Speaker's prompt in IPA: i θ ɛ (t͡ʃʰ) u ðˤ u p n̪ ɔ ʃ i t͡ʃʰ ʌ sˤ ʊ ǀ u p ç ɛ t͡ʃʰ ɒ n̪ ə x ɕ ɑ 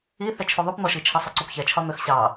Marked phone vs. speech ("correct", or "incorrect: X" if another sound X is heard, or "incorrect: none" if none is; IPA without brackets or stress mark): correct